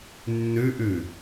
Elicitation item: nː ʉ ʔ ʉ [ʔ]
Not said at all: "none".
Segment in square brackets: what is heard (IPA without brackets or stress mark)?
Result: none